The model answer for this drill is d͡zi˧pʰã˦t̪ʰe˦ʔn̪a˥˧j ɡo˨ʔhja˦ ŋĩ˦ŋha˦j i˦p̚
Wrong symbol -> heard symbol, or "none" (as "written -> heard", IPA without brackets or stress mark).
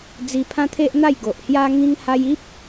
none